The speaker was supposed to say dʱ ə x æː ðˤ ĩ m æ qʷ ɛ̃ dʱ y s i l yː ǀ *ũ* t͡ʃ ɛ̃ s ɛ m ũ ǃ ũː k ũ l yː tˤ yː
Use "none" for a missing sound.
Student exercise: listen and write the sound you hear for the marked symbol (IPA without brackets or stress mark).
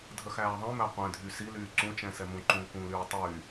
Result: ũ